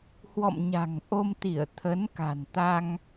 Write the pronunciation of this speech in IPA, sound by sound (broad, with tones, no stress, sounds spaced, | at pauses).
h w ɔ̰˧˨ m ɲ a̤˨˩ ŋ ʔ o˧ m t̪ i˧˩ ə̯ t̪ʰ ə˨˦ n k a̤˨˩ n t̪ a˧ ŋ